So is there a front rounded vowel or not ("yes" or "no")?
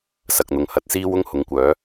yes